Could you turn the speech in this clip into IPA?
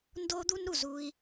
n d o˦ d̪ u˦ n ɾ u˨ z u˦ i̯

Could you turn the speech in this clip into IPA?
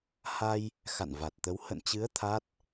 h a˧ j | x a̰˧˨ n v a˨˩ t̚ t̪ ə˨˦ w h ə̰˧˨ n t͡ɕ ɨ˨˦ ə̯ t̪ʰ a˦˥ t̚

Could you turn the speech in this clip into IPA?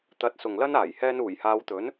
t̪ ɐ˨˥ t̚ s ʊ˨ ŋ l ɐ˥ n aː˨˩ j h ɛː˧ n uː˨˩ j h aː˨˧ w t̪ ɵ˨˥ n

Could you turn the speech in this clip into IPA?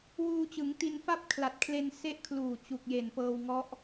w uː˧ t͡ɕ ɯ˩˦ ŋ t i˧ n f a˥˩ p̚ kʰ l a˨˩ t̚ kʰ l e˧ n s e˦˥ ʔ kʰ l uː˨˩ t͡ɕ u˨˩ k̚ j e˨˩ n p ɤː˧ w ŋ ɔ˦˥ ʔ

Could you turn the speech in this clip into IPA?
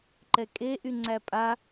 ǃ ɛ kʼ e ʔ y ŋ͡ǀ æ pʼ a

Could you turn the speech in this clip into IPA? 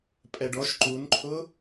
pʼ ɛ ɖ ɔ ʃ ǃ u n ǃʰ ʊ

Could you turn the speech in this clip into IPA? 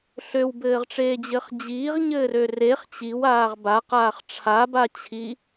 ɬ ø w b ɘː ʁ ʈ͡ʂ eː d͡ʑ ɘː χ d͡ʑ iː ʁ ɲ ɘː r ø r e χ t͡ɕ i w aː ʁ b a q aː χ ʈ͡ʂʰ a b a t͡ɕʰ i

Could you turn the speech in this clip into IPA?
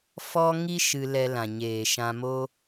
f ɔ˦ ŋ i˦ ʃ ɨ˧ l ɛ˧ l ã˨ ɲ eː˨ ʃ ã˧ m o˦

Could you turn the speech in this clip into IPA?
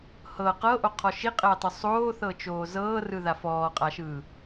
h ɤ q ɤ ʔ o qʰ ɔ ʃ i qʼ ɛː tˤ o sˤ oː θ ɤ t͡ʃ oː z ɤː r ɯ ð a f ɔː qʼ a ʃ ɯː

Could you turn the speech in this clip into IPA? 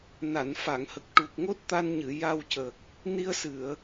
n a˨˩˨ n f a˨˩˨ ŋ h ə˨˩ k̚ ʈ u˨˩ k̚ ŋ o˦˥ t̚ t̪ a˧ n ɲ ɨ˨˩˨ j a˧ w c ə˨˩ k̚ | n i˧ ə̯ s ɨ˨˩˨ ə̯

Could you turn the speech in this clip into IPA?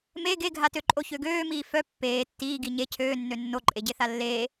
m e ɡ e ɡʱ a t ø ǃʼ o ç ø ɡ øː m iː f œ pː eː tː iː ɡ i ɲ e cʰ øː nː ø nː o ǃʼ e ɟ e θ a lː eː

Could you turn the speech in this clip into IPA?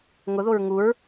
ŋ ʊ ð o ɹ ŋ u ɹ

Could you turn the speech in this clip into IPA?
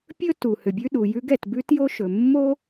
pʲ ɵ˥ t u˩ h ʏ˩ bʲ ʉ˥ ɗ u˩ j ʉ˥ ɡ ɛ˩ t b ʉ˥ t j o˥ ʃ ɵ˩ mː o˥

